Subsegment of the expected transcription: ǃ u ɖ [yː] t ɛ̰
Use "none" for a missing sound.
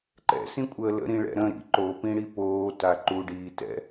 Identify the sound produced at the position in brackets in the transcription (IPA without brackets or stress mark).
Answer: iː